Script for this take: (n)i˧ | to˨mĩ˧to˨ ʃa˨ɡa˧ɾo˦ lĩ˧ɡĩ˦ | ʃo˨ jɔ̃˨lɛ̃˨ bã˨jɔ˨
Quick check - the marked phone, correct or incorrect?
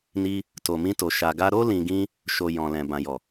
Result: correct